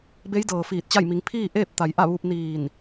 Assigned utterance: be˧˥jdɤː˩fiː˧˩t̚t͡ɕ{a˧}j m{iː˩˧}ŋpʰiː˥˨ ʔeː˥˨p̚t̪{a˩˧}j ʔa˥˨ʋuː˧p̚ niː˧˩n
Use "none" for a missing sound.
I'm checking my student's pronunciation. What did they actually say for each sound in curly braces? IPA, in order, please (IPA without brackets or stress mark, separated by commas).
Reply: a˥˨, i˩˧, a˩˧